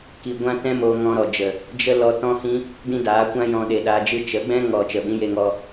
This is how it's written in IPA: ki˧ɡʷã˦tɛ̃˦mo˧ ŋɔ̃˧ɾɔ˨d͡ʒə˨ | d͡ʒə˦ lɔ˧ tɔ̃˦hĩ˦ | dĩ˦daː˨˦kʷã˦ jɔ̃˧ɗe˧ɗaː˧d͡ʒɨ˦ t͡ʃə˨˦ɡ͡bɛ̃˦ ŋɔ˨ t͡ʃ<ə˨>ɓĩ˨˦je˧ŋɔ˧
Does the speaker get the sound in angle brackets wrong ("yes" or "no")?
no